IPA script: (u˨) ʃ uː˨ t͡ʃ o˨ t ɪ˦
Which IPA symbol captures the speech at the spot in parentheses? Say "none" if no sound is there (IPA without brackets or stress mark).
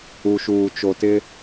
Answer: u˨